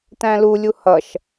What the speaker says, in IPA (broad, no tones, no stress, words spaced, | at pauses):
tæ̃lu lʲuhʌʃ